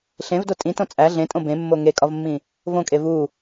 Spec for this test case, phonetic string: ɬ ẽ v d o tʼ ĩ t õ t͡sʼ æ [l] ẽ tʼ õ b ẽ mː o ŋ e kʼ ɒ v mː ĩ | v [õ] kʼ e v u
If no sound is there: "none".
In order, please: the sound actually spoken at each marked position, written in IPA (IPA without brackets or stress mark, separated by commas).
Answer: ɮ, õ